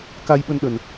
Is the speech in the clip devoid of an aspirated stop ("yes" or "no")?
yes